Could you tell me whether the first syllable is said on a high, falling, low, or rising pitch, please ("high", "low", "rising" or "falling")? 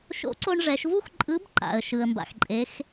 rising